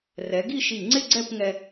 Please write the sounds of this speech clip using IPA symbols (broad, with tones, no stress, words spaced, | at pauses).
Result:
rɛ˩˧ɡi˥˧ʃi˧˩ ŋ͡ǀɪ˥˧ ɡ͡ǀɛ˥˧pŋɛ˧